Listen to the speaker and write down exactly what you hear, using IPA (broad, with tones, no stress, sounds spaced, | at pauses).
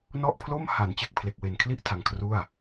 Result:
n ɔ˥˩ ʔ pʰ l o˥˩ m h a˩˦ n t͡ɕ e˨˩ k̚ pʰ l e˨˩ k̚ w e˨˩ n kʰ l i˥˩ ʔ tʰ a˧ ŋ kʰ r u˥˩ a̯